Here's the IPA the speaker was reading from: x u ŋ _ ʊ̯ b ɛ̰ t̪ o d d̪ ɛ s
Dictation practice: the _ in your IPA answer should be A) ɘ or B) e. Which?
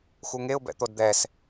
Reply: B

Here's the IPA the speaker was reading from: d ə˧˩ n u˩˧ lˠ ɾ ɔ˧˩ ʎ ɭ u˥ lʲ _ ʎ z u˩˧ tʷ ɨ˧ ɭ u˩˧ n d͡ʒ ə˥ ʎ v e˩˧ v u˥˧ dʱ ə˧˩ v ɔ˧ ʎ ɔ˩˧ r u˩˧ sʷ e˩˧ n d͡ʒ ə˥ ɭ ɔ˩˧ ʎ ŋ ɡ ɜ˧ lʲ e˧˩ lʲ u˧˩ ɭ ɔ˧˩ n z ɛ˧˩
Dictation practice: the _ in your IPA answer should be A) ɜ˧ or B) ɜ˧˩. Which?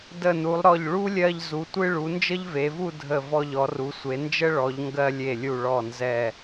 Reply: A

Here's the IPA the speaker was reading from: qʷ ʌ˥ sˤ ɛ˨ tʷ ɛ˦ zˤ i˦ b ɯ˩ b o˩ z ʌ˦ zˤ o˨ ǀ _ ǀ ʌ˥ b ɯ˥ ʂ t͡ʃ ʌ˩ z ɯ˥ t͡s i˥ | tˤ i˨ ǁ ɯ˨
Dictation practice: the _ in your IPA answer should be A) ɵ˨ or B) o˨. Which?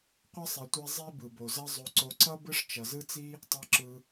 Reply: B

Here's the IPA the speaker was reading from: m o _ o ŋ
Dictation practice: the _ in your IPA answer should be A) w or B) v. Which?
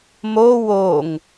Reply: A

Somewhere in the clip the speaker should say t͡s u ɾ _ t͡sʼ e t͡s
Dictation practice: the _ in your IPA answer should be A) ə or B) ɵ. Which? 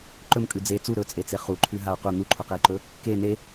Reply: B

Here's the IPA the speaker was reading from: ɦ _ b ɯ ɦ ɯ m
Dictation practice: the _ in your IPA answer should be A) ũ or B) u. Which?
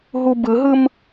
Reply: B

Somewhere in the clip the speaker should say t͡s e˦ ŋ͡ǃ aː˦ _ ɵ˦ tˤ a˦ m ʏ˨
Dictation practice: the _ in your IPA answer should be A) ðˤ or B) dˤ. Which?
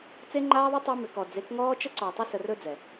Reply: A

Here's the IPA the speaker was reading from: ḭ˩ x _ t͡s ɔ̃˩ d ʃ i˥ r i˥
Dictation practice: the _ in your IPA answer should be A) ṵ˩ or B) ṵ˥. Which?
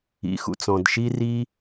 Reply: A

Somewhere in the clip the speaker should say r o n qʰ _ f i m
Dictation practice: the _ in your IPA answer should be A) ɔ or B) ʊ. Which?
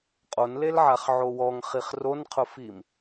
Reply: B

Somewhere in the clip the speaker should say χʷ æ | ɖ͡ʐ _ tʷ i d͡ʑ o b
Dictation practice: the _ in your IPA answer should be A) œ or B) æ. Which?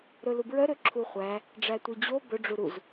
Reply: B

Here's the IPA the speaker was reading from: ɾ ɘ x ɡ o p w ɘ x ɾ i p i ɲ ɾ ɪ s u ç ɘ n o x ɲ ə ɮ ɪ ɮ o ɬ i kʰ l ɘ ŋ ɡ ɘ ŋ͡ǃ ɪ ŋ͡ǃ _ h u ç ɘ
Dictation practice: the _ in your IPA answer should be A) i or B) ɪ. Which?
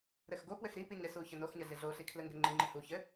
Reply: B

